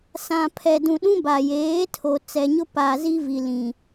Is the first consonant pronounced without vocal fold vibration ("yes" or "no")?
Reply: yes